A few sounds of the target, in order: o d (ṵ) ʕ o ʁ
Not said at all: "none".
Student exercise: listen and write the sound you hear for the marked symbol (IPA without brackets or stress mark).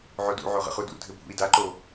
ṵ